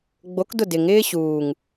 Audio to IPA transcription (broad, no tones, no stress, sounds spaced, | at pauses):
ɡ͡b o k d ʊ d ɪ ŋ ɪː ɕ uː ŋ